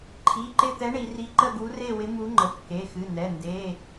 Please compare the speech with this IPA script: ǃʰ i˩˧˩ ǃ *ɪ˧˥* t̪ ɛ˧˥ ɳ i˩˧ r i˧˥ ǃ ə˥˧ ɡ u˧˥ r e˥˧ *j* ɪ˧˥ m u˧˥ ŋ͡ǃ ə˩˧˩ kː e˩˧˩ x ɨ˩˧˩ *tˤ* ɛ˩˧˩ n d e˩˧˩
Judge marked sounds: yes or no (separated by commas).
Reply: no, no, no